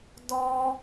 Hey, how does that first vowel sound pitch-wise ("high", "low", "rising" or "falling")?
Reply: high